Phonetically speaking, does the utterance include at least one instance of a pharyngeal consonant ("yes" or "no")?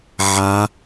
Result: yes